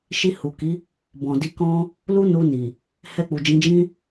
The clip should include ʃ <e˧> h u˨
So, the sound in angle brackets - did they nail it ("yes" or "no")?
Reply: no